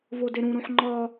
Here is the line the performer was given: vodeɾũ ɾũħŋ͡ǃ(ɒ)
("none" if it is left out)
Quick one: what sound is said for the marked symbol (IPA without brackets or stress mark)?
ɒ